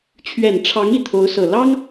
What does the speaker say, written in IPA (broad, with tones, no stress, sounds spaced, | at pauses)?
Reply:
t͡ɕʰ ɥ ɛ˨˩ n ʈ͡ʂʰ ɑ˧˥ ŋ i˨˩ t̪ʰ o˧˥ ʊ̯ s ɤ˨˩ l ɑ˥ ŋ